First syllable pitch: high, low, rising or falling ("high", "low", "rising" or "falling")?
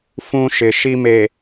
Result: high